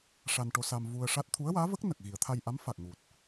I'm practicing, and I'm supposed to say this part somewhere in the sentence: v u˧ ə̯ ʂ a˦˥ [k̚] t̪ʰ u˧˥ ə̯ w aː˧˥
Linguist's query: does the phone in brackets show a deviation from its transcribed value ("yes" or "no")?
yes